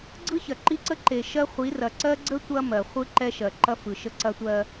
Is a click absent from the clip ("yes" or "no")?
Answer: no